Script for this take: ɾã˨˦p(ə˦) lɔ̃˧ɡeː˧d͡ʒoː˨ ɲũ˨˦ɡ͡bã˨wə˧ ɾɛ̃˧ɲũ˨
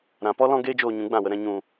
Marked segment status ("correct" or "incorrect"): incorrect